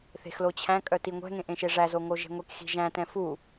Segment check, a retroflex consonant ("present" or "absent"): present